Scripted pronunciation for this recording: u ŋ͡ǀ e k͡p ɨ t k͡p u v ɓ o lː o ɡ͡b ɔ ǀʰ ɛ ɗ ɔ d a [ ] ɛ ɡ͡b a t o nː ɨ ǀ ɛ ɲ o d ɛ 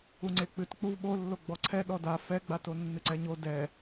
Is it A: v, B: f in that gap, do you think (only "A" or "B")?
B